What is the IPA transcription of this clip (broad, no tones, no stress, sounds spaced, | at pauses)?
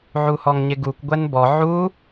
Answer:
ʕ u h ɔ ŋ ɲ ɪ ɡ u kʷ ɡʷ ɛ n b ɔ ʕ u